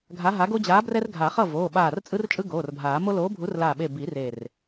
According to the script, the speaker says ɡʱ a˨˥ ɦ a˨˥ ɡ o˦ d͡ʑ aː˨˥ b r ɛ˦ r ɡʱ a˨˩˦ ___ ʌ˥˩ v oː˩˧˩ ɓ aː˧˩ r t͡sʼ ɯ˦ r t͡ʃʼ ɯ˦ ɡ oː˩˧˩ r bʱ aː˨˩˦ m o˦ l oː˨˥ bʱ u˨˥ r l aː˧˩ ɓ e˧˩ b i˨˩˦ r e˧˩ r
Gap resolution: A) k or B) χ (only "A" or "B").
B